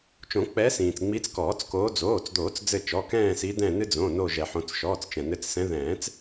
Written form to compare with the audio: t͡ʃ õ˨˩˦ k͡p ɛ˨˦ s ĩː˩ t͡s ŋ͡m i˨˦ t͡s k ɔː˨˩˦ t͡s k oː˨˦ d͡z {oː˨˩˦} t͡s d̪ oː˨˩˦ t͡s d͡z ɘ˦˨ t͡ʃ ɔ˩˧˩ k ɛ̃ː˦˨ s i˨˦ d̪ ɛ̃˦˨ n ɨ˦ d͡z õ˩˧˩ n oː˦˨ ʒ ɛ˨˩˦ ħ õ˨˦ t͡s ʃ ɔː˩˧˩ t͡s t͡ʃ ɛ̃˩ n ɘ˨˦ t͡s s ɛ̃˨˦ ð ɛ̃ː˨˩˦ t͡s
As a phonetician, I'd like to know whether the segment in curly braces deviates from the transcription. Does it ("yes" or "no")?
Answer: yes